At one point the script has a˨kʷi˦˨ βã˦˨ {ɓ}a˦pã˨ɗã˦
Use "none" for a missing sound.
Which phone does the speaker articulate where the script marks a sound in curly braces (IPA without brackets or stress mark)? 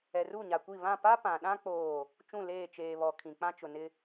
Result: p